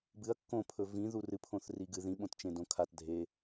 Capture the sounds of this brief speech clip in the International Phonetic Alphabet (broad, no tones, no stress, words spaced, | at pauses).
bɨɐ̯ kːõpʰɵ vĩ ðurɨ pʰõθriɡɨ ðĩɓõtt͡ʃẽ dõkʰat dʱe